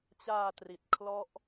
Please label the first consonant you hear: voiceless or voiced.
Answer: voiceless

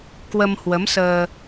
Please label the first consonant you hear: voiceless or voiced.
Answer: voiceless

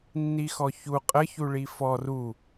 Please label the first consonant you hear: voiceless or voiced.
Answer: voiced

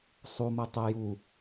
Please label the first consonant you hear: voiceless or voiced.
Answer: voiceless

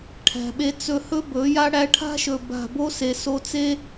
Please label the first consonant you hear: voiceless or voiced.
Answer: voiceless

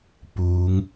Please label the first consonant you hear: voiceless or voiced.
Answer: voiceless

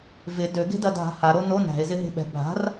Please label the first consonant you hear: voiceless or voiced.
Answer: voiced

